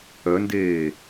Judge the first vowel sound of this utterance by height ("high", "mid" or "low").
mid